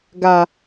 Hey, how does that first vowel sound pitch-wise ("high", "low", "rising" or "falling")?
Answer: low